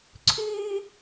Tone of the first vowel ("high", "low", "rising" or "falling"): high